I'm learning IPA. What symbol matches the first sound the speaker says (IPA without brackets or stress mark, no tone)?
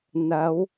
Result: n̪